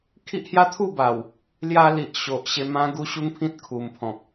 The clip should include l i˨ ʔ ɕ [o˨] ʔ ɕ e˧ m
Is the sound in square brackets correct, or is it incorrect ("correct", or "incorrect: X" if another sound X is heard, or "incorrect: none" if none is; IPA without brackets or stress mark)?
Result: correct